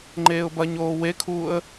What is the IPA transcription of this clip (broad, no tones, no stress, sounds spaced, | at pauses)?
ŋ͡ǃ eː ʊ̯ b ɐ ɲ oː w e kʰ uː ə̯